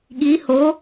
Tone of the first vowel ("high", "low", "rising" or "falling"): rising